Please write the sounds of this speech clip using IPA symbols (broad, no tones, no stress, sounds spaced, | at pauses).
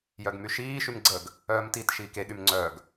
j œ ɡ m y ʃ iː ʃ y m ɡ͡ǀ ə ɡ | œː m t i t ʃ iː k e ɠ y m ŋ͡ǀ œ ɡ